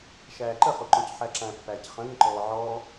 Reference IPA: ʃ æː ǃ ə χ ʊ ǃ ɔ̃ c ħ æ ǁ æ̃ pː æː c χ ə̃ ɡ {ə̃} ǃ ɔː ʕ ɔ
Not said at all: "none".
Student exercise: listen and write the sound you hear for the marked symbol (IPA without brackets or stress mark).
ə̃